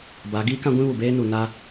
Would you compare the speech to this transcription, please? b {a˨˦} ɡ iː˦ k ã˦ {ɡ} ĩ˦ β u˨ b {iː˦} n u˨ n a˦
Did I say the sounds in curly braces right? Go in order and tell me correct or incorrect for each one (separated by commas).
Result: correct, incorrect, incorrect